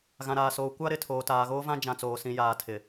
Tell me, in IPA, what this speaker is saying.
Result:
ɣã˨ɾaː˨soː˨ kʷa˦ɾɪ˨ tʰoː˨taː˨ɣoː˦vã˦ d͡ʒã˨t͡soː˨ sĩ˨jaː˨ tʰɪ˨

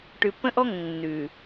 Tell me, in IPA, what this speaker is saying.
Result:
ʈʉ˨pːə̃˦ʔɔ˦ ŋə̃˨ŋnːʉː˨

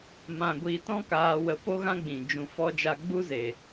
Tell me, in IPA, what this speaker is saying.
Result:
mã˨ɡʷiː˨tɔ̃˦ kaː˧wə˧ po˦ɣã˦ɡ͡bĩ˨ d͡ʒũ˨fɔ˧d͡ʒa˧ ɡ͡bu˦ze˨

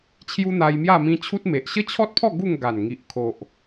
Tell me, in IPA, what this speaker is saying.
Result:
t͡ɕʰju˦n̪a˧j mja˥˧ mĩ˧t͡ɕʰu˦t̚me˨ʔ ɕə˦t͡ɕʰɔ˦t̚pʰɔ˥˧ ɡu˥˧ŋɡa˨˩nŋi˨ʔ kʰo˨ʔ

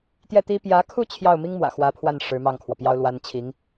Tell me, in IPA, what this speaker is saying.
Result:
t̪jɛ˥˩t̪i˥ pjä˧˥kʰu˥˧ t͡ɕʰjɑ˥˩ʊ̯mi˥ŋmwä̰˨˩ xwä˧˥pʰwa˥˩n ʂɻ̩˧˥mɑ˥˩ŋkʰwɔ˩pjɑ˥ʊ̯ lwa˥n t͡ɕʰi˧˥ŋ

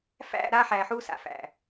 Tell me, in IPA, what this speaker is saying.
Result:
fæ̰˦˨ ɾa˦ħæ˨ħu˦sa̰˨ fæ̰˨

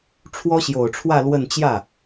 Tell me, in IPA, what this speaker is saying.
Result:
ʈ͡ʂʰwɔ˥ɕjo˨˩ʊ̯ʈ͡ʂʰwä˥˧ lwə˥˧n t͡ɕjä˥˩

